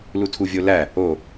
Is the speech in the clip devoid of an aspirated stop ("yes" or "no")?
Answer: no